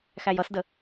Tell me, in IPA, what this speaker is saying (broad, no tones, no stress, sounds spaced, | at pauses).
x æ j ʌ s d ə